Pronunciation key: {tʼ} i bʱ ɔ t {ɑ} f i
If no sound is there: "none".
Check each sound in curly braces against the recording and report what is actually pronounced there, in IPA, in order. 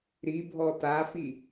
ɾ, a

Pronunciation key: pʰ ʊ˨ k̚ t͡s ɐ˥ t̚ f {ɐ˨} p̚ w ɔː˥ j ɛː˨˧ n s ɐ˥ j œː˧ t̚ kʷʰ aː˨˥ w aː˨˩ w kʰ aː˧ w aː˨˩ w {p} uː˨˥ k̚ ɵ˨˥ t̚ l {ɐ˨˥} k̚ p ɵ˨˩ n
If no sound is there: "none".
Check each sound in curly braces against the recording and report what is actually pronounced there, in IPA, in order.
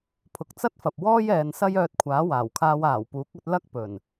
ɐ˨, p, ɐ˥

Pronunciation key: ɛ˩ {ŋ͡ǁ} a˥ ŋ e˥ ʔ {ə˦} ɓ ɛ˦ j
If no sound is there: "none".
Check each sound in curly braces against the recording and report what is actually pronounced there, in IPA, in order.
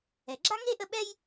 ɡ͡ǁ, ə˦

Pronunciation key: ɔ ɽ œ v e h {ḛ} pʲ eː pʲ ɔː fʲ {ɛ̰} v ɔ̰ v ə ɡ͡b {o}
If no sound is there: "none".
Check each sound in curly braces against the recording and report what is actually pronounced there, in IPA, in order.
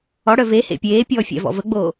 ḛ, ɛ̰, oː

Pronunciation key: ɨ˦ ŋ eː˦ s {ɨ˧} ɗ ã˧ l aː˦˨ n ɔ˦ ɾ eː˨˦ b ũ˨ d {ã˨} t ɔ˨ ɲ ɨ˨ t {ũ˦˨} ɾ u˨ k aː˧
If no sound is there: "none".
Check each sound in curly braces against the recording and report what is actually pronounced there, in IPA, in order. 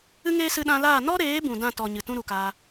ɨ˧, ã˦˨, ũ˦

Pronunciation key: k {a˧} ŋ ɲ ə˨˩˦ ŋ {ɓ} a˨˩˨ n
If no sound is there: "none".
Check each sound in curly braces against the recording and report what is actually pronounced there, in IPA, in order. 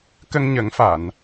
ə˧, f

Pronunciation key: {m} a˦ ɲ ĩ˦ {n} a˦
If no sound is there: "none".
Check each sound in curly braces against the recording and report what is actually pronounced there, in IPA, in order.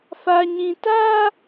f, t

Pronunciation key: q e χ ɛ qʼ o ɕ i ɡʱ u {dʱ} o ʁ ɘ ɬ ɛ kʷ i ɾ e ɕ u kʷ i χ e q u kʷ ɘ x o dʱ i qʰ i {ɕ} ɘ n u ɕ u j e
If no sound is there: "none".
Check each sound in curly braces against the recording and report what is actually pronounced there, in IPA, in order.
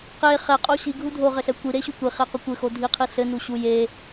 dʱ, ɬ

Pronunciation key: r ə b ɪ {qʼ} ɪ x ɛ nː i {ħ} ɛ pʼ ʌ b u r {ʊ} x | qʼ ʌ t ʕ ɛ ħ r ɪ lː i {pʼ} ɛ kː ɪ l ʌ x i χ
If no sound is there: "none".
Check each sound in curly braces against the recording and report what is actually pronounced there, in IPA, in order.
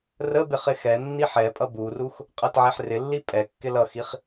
χ, ħ, u, pʼ

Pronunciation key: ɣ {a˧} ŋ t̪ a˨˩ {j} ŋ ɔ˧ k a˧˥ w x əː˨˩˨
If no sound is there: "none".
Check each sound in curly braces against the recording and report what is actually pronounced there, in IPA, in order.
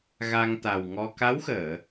a˧, w

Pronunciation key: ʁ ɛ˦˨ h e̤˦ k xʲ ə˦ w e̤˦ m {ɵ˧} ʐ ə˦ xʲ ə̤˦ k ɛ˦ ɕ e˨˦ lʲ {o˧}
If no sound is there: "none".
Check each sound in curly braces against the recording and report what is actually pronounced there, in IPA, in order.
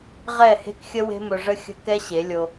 ɵ˧, o˧

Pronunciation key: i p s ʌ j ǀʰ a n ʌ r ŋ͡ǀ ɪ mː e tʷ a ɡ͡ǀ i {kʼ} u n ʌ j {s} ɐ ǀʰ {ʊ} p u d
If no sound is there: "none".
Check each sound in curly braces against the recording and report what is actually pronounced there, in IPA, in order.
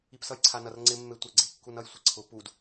kː, sʷ, ʊ

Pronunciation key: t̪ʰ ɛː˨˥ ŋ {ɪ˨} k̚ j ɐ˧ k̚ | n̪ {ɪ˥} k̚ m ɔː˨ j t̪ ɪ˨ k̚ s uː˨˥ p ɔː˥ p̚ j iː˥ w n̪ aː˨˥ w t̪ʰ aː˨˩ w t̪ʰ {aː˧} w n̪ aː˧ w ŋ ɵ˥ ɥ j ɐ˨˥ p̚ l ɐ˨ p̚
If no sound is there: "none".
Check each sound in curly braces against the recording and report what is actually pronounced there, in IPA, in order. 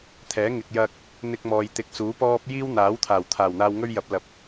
ɪ˨, ɪ˧, aː˨˩

